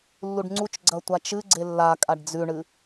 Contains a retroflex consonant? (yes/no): yes